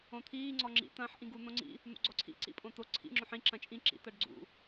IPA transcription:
õt̪ʰiː ŋ͡ǀɔŋ͡ǁḭ t̪ɐ̃ːħʔĩɡu n̪õŋ͡ǀḭ | n̪ṵɡ͡ǀɔǀʰḭ ǀḭpʼõt̪o ǀʰḭ ŋ͡ǁõħĩ ǁɐ̃t͡ʃʼĩ ǁḭ t̪ɐɖɡ͡ǀṵ

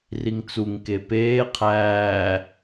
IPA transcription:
riŋt͡suŋke peː qʰæː

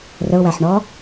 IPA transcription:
rəʊ̯wæħɳɔ

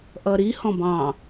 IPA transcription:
ʔʌɾi hɔ̃bɑ̃

